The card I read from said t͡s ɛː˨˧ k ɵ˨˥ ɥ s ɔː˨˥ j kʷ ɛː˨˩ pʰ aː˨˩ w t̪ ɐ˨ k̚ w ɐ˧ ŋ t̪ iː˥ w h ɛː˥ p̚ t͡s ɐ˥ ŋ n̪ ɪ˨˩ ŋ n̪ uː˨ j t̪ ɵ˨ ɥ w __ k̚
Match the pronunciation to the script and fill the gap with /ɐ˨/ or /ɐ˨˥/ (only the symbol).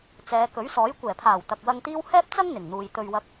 ɐ˨˥